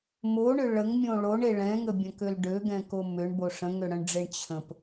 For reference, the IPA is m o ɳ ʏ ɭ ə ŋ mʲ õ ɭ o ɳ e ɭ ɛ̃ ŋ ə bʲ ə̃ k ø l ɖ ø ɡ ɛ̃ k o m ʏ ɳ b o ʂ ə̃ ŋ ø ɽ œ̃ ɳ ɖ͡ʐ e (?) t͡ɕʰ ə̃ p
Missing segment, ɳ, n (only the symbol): ɳ